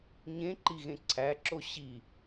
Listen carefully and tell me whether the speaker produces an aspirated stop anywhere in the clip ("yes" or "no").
yes